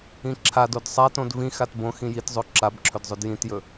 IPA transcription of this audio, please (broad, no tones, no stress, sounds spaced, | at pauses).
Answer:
ĩ ǁʰ a d o d sˤ a t õ d v ĩ x a t b õ x ĩ j i t zˤ o ǁ a b ǁʰ ɵ d zˤ ɵ d j ĩ t j ɵ